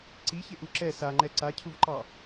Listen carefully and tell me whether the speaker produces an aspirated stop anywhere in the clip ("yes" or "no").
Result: yes